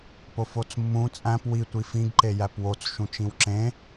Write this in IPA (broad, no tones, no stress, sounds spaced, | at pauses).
p o f o t͡s mː ũ t͡sʼ æ̃ p w i tʷ i f ĩ ɡ ǃ e j æ p w o t͡s ʃ ũ t͡ʃ ĩ w ǁ ẽ